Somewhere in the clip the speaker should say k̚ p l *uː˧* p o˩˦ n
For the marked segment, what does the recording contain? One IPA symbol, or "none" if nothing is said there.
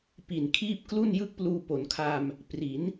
uː˧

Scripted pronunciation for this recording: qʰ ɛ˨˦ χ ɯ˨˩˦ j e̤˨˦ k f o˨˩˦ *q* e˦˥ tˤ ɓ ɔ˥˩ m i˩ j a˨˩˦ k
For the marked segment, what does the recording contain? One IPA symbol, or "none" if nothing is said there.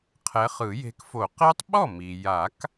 q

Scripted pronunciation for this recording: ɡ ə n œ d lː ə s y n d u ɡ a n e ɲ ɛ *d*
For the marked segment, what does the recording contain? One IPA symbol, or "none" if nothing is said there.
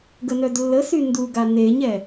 none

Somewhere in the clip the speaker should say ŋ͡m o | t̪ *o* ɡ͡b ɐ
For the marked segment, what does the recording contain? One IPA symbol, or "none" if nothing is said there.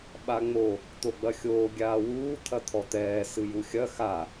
o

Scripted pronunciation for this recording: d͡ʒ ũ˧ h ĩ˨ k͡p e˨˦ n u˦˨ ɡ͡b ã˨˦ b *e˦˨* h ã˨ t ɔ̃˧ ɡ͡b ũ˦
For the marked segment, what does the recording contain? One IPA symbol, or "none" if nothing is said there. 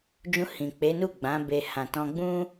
e˧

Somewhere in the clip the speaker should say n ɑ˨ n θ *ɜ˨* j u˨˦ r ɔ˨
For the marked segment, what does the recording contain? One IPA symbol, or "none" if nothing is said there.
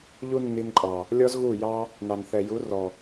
ɛ˨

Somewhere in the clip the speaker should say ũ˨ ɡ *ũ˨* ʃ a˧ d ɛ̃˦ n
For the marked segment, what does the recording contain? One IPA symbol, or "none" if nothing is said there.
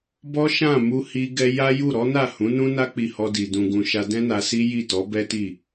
ũ˨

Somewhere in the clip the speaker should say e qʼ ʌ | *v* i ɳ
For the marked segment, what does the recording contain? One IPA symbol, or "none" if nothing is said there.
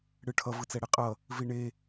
v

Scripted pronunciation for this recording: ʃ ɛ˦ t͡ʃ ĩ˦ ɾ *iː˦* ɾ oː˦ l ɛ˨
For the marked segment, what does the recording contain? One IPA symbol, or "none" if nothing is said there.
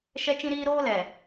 iː˦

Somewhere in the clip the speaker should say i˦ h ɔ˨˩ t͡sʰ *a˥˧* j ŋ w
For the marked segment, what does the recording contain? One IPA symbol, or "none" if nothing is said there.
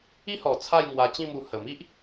a˥˧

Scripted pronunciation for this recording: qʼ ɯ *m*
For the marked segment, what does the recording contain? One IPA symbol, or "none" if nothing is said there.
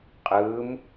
m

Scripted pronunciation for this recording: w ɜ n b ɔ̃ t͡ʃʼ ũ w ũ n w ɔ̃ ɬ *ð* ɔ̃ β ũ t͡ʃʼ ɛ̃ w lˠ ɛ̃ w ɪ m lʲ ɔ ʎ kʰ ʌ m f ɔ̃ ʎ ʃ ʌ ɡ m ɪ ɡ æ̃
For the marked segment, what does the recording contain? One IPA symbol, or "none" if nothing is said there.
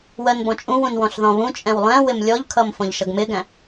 ð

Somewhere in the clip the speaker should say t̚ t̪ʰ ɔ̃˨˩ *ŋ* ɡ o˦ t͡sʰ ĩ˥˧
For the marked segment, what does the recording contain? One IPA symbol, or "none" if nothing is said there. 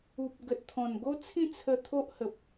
n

